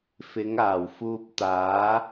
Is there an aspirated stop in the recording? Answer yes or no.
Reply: no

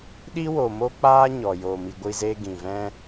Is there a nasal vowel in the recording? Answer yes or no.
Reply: yes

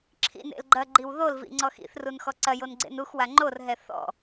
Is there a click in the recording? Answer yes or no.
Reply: yes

